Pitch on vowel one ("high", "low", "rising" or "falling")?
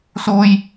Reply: high